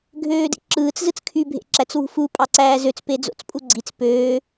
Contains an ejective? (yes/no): yes